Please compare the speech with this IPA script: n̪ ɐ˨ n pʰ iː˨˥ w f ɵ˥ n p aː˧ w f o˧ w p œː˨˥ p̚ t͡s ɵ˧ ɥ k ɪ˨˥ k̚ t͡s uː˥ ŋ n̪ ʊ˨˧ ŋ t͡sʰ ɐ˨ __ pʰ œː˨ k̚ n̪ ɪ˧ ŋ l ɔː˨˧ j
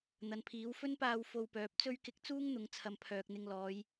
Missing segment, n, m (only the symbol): m